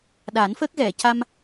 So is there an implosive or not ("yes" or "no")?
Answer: yes